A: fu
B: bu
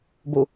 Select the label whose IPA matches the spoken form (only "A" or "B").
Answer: B